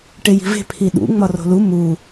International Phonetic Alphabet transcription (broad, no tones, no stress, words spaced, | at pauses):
ʈeji̤ve̤ pʰiɗṵ ŋ͡mɒro̤lu mu